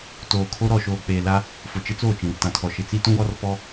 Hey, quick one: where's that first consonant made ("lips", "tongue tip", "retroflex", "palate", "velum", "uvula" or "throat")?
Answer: tongue tip